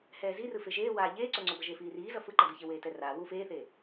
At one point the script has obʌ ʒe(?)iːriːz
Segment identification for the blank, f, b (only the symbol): f